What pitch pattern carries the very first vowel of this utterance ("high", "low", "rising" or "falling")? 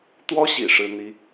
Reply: high